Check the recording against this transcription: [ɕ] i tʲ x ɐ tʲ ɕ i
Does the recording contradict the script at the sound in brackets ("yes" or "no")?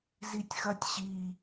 yes